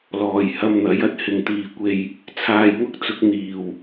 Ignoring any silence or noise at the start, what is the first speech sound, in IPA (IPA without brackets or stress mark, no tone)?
l